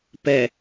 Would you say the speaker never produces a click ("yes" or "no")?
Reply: yes